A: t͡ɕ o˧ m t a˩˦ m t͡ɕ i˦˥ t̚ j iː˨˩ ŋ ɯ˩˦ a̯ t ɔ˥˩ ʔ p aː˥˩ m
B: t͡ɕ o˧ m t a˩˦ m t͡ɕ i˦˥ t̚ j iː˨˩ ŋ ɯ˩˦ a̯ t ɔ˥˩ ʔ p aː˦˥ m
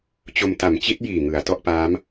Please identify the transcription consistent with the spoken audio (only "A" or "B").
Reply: B